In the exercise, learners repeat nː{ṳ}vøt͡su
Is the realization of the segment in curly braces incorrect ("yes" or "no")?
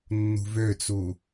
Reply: no